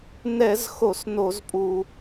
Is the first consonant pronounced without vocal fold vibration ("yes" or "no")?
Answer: no